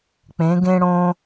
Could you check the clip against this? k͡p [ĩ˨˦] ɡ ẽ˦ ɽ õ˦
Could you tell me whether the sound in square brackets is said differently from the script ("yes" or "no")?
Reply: yes